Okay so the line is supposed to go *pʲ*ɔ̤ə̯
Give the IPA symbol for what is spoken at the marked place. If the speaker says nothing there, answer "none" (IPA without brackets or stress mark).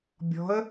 bʲ